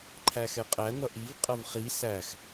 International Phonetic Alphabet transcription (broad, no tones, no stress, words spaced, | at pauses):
ǃʰæxɛqʼæ n̪ʌʔiv qʼʌvχi sæx